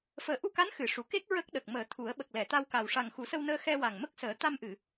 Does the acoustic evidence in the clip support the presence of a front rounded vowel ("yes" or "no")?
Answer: no